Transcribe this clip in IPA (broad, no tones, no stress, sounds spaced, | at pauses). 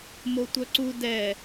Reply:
m o tʷ œ ǀ u d ɛ